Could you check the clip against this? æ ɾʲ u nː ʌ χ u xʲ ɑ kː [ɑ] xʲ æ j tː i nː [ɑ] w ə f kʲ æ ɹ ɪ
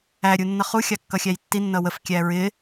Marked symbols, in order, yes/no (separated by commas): no, no